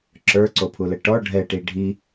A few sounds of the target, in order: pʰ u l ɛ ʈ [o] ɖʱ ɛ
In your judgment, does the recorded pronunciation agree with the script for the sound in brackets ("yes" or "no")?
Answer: no